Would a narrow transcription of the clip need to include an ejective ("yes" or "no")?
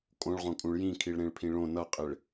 yes